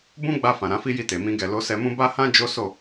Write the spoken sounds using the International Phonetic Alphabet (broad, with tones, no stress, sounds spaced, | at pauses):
b ũ˦ ɡ͡b a˧ f ã˨ ɾ ã˨˦ f i˦ j i˦˨ t e˨ m ĩ˧ ɡ ɛ˨ l o˨˦ s ɛ˧ m ũ˦ b a˦ h ã˦ d͡ʒ o˦ s o˦˨